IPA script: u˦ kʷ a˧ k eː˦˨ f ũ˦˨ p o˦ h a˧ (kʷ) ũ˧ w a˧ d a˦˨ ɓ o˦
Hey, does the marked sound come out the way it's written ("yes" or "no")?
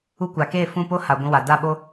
no